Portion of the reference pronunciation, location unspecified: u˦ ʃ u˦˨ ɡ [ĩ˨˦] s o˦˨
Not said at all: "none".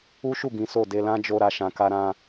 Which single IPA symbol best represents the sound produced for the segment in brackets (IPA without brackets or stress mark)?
ĩ˨˦